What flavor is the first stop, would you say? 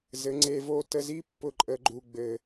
click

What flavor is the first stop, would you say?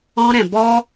plain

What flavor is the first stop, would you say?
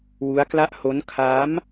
plain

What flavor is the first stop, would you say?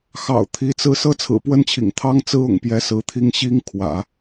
aspirated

